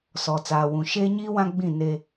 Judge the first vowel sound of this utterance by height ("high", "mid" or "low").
mid